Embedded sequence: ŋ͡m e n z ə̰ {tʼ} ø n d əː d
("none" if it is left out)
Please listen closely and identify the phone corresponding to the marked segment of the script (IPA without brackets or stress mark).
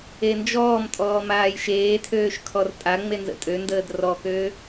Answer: tʼ